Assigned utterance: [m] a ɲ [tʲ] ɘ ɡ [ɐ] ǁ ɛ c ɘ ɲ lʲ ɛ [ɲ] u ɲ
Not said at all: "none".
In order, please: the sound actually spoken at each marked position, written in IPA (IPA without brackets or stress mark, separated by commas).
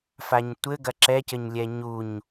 f, tʷ, ɐ, ɲ